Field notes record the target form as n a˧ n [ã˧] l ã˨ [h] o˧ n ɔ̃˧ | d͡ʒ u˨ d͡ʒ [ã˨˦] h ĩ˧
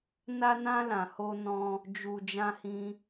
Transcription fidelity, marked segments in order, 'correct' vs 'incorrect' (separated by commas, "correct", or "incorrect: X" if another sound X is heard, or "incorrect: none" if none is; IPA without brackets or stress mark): correct, correct, incorrect: ã˧